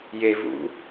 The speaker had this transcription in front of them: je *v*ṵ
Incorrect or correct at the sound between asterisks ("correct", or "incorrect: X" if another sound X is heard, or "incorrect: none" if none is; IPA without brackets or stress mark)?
correct